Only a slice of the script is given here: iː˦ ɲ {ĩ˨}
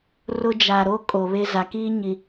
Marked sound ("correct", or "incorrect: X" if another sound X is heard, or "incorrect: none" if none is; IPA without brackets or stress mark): incorrect: i˨